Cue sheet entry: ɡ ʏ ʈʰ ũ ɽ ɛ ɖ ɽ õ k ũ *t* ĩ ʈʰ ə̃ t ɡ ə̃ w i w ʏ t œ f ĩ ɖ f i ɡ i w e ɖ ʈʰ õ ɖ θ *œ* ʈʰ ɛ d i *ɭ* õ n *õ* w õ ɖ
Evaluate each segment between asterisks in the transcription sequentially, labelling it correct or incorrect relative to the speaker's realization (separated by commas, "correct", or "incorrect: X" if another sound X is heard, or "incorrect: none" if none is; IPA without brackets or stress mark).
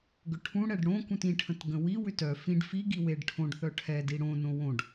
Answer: correct, correct, incorrect: ɽ, correct